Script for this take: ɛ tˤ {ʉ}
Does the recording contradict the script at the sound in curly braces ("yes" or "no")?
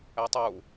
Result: yes